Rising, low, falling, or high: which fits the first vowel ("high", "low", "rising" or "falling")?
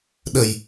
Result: low